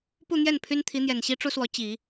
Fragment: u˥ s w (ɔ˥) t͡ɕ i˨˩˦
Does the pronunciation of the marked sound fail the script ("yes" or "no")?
yes